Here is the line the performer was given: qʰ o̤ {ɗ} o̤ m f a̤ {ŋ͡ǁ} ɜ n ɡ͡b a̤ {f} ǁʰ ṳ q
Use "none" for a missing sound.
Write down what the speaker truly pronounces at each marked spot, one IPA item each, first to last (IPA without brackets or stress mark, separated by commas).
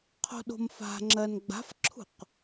ɗ, ŋ͡ǁ, f